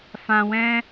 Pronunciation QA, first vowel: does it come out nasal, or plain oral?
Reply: nasal